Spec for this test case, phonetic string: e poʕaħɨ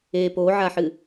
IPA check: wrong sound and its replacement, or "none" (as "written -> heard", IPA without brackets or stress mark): none